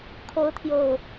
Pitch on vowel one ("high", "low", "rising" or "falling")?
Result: rising